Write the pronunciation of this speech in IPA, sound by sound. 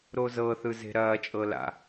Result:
ɾ o z ɤ θ ɯ z e̤ ɾ ɐː t͡ʃʼ ɤ l a̰

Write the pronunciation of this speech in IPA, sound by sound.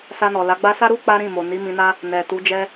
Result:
s a˧ n ɔ˨ l a˨˦ ɡ͡b a˦ s a˦ ɾ u˦ k͡p a˦ ɾ ĩ˦˨ m o˨ n i˨˦ m ĩ˧ n a˦ | n ɛ˨ t u˨˦ d͡ʒ ɛ˦

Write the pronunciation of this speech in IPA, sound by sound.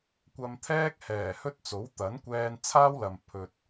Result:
kʷ ɐ˧ m t̪ʰ ɛː˥ k̚ h ɛː˨˩ h ɵ˥ t̚ t͡s o˨˥ w t̪ ɐ˨˥ n kʷ ɛː˧ n t͡sʰ aː˥ w l ɐ˨ m pʰ ɵ˨ t̚

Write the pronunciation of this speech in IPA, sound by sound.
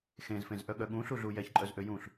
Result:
x ẽ z f ẽ z ʔ œ ɠ œ ɠ ũ ɬ u ɮ u j ɛ ç ǃʼ œ z ʔ ø j ũ ɬ

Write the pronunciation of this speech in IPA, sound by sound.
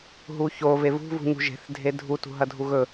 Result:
ɦ u ç o v e v ṳ v ṳ ɲ ṳ ʒ e̤ θ dʱ e dʱ u t ṳ ɦ ɐ dʱ u ɣ ɵ

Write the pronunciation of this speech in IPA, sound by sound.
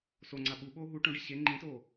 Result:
s o ŋ͡ǀ a ɓ u ɓ oː ɦ u ʈ õ ɖ i ɕ e ŋ͡ǃ ĩ t oː

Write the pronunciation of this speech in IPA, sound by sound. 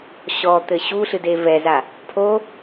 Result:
ɕ ɔ t̪ ɘ ɕ u ɬ ɨ d e v ɛ z a | pʰ o

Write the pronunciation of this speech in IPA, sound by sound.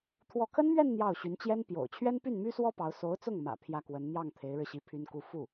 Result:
t̪ʰ w ɔ˥˩ kʰ ə˥ n m ɥ ɛ˥˧ n n̪ j ɑ˥˩ ʊ̯ ɕ y˧˥ n t͡ɕ j ɛ˥ n p j o̰˨˩ ʊ̯ t͡ɕʰ ɥ ɛ˥ n p y˥˩ n m y˥ s w ɔ˥ p ɑ˧˥ ʊ̯ s o˧˥ ʊ̯ t͡s ʊ˥˩ ŋ m ä̰˨˩ pʰ j ä˥˩ k w ə˧˥ n n̪ j ɑ˥˩ ŋ t̪ʰ e˧˥ ɪ̯ ɻ ɻ̩˧ ɕ i˧˥ pʰ y˥ n k u˥˧ f u˥˩

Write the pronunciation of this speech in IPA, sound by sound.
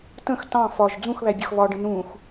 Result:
t ə̃ x t ɑ̃ f ɒ ʒ d͡z ũ x β æ bʲ ʌ x β ɒ ɖ ə̃ n ũ x

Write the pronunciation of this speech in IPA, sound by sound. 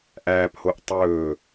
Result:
ʔ æː p h o ʔ tˤ ɵː

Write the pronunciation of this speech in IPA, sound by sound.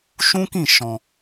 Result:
ʃ ũ˦ k ĩ˦˨ ʃ ɔ̃˧

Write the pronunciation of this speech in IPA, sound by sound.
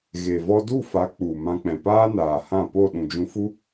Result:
ɣ e˨ v ɔ˧ d u˦˨ f a˨˦ k͡p u˨ m ã˧ k͡p ɛ̃˨ p aː˦ n aː˨ h ã˦˨ p o˦˨ ɗ ũ˨ d͡ʒ ũ˧ f u˦

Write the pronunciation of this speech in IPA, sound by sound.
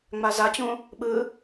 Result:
ŋ͡m a z a t͡ɕ ũ | ɓ ɯ

